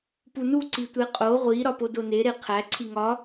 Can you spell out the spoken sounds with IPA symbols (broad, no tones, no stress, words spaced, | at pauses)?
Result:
punu ǀitʷeqʼo ʁʷi ɾɒpodone ɾeqʰæ ǀʰiŋɒ